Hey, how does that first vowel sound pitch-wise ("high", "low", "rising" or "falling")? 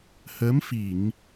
rising